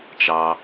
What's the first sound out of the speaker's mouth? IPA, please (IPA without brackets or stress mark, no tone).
t͡ʃ